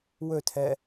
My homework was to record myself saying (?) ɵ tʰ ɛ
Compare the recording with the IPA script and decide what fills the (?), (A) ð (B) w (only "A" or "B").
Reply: B